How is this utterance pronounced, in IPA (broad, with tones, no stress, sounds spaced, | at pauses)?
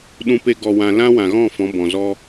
ɗ ũ˧ p e˧ ɡ ɔ˨ w ã˨ l ã˦ w ã˨ ɣ ɔ̃˦˨ f ɔ̃˨˦ b ɔ̃˨ z ɔ˦